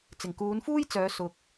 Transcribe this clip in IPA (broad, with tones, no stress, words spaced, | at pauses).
t͡sɪ˨˩ŋkuː˨˧nfuː˥jt͡sœː˨˧ sʊ˨k̚